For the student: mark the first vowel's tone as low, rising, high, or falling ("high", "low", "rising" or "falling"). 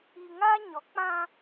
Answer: low